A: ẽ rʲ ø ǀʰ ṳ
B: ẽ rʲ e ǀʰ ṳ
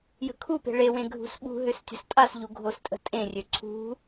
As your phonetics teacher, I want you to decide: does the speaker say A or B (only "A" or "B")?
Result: A